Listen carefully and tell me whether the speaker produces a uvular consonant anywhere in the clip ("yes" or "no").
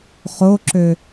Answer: yes